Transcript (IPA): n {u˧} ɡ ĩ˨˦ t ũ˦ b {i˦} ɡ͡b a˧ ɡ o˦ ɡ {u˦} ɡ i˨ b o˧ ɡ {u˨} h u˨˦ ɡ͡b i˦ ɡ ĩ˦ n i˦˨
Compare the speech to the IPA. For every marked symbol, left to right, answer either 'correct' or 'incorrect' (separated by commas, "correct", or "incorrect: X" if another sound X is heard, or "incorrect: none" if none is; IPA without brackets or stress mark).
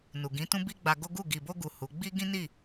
incorrect: u˨, correct, incorrect: u˦˨, correct